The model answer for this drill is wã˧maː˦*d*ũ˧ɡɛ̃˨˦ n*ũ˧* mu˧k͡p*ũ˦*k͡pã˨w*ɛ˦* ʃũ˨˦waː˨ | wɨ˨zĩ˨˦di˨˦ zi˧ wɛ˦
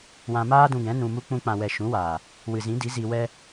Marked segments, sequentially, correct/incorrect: correct, correct, incorrect: ũ˧, incorrect: ɛ˨

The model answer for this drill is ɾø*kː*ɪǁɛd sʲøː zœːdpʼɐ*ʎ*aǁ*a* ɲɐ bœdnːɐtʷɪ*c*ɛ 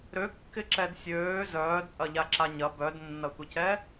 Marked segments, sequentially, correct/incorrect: correct, correct, correct, correct

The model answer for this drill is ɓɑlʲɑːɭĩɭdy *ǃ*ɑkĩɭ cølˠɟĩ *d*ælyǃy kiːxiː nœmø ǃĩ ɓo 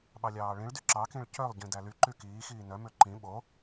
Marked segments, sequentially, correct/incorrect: incorrect: ǁ, correct

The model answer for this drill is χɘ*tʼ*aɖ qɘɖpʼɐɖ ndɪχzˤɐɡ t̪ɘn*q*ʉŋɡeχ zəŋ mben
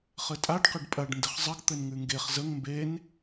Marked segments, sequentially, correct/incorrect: correct, incorrect: ŋ

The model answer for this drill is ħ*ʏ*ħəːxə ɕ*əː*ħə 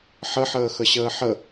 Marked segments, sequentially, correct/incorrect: incorrect: ə, correct

